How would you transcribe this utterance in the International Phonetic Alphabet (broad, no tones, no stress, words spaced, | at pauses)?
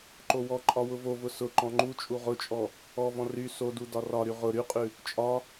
ǃowɔǃʼɒ wʊvovʊ sʊ ǃɔ̃ŋ͡ǃut͡ʃʼu ʁʊt͡ʃʼɔ | ɔvɔ̃ ry sodu dɒrɒɾy ʁʊ ɾyqʼʉ | t͡ʃʼɒ